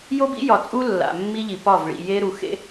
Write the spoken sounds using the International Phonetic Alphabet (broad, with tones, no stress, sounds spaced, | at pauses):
j o˦ b ḭ˦ j ɒ˨ t͡sʼ u˦ lː a̰˨ mː i˦ ʎ i˨ p ɒ˦˨ v ɭ ḭ˨ j e˦ ɾ u˨ x ḛ˦